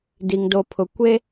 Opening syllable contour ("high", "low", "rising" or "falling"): low